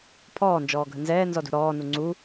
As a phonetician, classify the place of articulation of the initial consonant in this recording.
labial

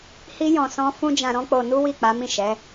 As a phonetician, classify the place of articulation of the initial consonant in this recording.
glottal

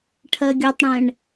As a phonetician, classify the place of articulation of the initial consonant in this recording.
retroflex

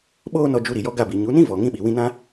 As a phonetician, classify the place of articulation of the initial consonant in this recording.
labial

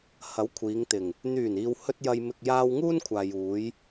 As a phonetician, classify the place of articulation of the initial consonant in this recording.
glottal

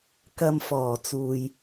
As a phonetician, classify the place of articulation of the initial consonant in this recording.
velar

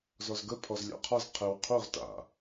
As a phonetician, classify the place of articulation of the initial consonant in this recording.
alveolar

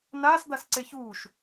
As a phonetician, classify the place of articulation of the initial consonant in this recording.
alveolar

